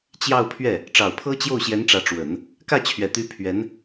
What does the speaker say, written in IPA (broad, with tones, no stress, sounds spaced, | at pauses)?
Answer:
t͡ɕ j ɑ˥˧ ʊ̯ pʰ ɥ ɛ˥˩ | ʈ͡ʂ ɑ˨˩ ʊ̯ pʰ ɤ˥ t͡ɕ j o˥˩ ʊ̯ ɕ j ɛ˧˥ n ʈ͡ʂ ä˧˥ ʈ͡ʂ w ə˨˩˦ n | k ä˥˩ t͡ɕʰ ɥ ɛ˨˩ t̪ y˧˥ pʰ ɥ ɛ˧˥ n